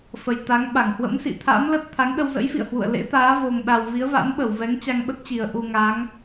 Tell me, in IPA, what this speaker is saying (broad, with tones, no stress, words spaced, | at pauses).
fə˨˩jt̪a˨˦ŋ ɓa˧˩ŋhwə̰˧˥msḭ˧˨ t̪ʰa̰˧˥mlə˦˥t̚ t̪ʰa˨˦ŋ ɗə˧wzə̰˧˥jfḭ˧˨ə̯hwṵ˧˨ə̯ lḛ˧˥t̪aː˨˦ vo˨˩ŋɗa˨˩w vi˨˦ə̯va̰˧˥n ɓə˧˩w vɛ˨˦ŋt͡ɕa˧ŋɓə˦˥t̚t͡ɕi˨˩ə̯ ʔu˧ŋa˨˦ŋ